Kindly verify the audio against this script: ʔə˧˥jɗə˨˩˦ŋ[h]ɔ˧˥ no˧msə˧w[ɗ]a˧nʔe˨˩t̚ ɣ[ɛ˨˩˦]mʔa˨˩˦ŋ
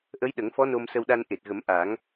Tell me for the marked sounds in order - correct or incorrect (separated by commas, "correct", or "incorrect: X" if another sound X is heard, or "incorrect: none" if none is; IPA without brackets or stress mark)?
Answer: incorrect: f, correct, incorrect: ə˨˩˦